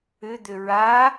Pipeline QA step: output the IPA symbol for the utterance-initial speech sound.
ʏ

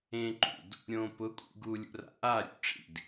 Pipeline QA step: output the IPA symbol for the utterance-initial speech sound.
ẽ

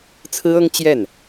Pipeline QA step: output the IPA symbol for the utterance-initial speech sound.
t͡sʰ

